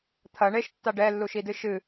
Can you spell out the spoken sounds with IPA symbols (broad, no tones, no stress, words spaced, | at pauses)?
t̪ʰɐ ɳeʃtːa ɖɛlːuʃidɨ ʃɨ